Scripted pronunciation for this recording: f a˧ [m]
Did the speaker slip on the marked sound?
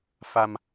no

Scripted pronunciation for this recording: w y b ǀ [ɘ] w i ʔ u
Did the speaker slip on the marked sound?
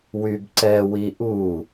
yes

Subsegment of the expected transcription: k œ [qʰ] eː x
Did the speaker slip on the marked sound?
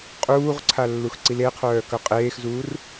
yes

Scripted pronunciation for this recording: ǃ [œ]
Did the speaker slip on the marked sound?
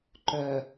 no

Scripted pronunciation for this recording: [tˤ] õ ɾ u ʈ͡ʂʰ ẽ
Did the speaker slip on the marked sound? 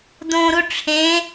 yes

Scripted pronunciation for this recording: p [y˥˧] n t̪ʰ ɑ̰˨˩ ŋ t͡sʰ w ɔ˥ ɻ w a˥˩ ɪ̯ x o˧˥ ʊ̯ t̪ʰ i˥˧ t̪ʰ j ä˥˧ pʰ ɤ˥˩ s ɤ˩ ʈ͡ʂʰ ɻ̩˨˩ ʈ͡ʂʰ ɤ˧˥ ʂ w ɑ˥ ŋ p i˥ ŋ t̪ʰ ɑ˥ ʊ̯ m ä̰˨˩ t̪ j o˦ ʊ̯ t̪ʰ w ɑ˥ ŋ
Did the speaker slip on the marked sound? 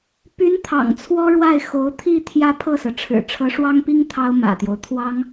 yes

